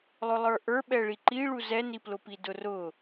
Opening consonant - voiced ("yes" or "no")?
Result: yes